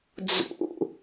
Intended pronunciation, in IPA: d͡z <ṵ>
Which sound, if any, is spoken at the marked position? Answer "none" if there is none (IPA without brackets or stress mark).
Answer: ṵ